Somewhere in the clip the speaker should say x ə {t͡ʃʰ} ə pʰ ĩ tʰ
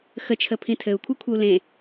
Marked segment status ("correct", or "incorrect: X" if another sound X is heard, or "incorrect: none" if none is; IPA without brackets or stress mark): correct